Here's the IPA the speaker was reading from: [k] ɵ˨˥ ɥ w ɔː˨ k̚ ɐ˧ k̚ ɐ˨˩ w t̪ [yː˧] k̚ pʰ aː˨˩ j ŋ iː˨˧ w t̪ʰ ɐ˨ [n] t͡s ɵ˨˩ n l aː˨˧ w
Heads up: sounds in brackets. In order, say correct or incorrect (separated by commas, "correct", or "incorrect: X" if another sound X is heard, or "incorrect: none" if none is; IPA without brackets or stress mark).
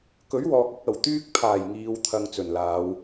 correct, correct, incorrect: ŋ